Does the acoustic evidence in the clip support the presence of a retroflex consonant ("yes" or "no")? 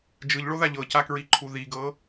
yes